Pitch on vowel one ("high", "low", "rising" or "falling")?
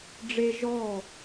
high